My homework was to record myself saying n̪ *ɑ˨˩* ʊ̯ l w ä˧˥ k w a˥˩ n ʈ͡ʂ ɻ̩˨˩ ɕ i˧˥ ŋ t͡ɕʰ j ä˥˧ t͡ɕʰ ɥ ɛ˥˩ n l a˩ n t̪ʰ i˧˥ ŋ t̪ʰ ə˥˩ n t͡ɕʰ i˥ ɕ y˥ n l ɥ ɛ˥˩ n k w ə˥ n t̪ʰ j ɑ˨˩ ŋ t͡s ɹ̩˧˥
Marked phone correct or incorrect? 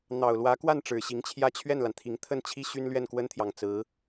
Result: correct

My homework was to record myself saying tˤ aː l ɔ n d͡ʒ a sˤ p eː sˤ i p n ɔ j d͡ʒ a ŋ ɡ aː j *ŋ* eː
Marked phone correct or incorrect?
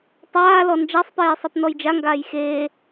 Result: incorrect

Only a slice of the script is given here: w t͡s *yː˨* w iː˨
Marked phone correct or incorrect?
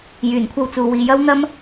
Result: incorrect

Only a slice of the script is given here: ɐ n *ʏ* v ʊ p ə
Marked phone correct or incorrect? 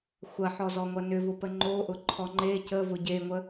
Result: correct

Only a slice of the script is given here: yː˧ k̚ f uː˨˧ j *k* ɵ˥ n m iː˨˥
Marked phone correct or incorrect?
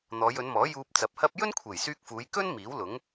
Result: correct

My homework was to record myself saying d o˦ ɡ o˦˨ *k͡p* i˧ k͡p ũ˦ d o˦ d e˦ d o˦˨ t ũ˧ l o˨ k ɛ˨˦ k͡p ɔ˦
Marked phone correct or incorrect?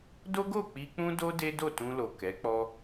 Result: correct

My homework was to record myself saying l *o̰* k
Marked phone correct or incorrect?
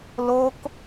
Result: incorrect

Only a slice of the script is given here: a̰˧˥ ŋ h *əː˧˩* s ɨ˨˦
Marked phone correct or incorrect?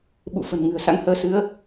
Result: incorrect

